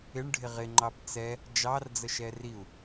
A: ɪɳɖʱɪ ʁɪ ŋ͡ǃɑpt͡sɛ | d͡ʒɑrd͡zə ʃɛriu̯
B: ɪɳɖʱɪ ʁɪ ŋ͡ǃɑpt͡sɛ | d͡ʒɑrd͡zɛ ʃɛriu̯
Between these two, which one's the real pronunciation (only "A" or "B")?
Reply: A